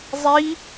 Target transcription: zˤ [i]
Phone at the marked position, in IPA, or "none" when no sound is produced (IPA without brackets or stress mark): i